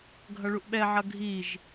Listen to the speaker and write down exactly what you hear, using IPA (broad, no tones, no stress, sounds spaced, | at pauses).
ɡʱ ʌ ɭ u ʔ ɓ ɛ ʕ ʌ ɡʱ i ʒ